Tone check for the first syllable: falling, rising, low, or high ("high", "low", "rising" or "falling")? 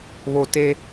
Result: low